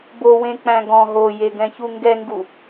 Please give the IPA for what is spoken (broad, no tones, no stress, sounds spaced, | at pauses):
b o w ẽ k͡p æ̃ ɡ ɔ̃ ɦ o j e ɡ ɛ̃ ç u ŋ ɡ ɛ ŋ ɡ u